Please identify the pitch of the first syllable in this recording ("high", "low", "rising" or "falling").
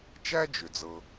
high